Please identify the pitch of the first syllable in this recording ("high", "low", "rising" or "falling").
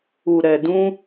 low